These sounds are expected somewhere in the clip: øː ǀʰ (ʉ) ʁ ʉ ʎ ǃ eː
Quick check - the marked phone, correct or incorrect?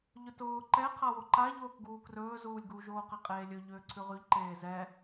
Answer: correct